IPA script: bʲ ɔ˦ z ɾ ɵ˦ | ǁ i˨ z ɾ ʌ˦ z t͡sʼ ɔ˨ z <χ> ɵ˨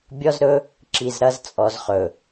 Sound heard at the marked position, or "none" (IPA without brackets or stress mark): χ